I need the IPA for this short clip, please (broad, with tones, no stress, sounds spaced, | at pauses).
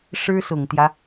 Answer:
ʂ ɻ̩˥ s ʊ˨˩ ŋ t̪ j ä˦